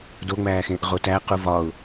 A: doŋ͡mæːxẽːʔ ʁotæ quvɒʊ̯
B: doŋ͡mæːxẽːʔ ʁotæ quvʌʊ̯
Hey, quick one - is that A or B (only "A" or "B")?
A